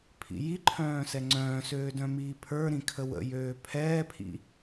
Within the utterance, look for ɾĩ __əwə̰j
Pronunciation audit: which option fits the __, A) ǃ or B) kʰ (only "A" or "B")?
B